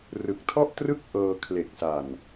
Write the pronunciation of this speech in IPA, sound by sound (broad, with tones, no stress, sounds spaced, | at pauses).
r ɯ˨˩ k̚ tʰ ɔ˥˩ ʔ t r ɯ˥˩ k̚ ʔ ɤː˧ kʰ l e˨˩ k̚ s a˨˩ n